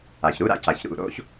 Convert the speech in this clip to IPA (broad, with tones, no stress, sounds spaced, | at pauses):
a˩ ç ɾ u˧˥˧ ɾ a̰˥˧ c a˩ ç ɾ ṵ˧˩ ɾ o̰˧˥˧ ç